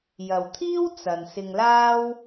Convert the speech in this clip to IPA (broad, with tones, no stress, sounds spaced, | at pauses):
j ɐ˨ w t̪ʰ iː˥ w t͡s ɐ˨ n s ɪ˧ ŋ l aː˥ w